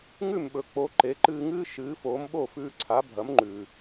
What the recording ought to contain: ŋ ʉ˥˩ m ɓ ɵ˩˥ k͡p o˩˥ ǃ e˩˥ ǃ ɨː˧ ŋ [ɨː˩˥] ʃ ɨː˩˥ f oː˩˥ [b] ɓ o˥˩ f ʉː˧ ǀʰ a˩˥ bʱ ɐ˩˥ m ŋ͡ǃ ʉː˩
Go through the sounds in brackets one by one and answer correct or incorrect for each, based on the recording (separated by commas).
incorrect, incorrect